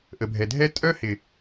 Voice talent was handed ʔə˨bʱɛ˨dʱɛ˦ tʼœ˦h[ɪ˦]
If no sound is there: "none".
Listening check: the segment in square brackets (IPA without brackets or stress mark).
ɪ˨